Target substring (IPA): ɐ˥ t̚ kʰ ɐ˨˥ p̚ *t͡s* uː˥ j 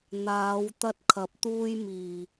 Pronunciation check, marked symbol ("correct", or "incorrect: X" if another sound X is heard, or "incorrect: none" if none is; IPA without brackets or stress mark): incorrect: t̪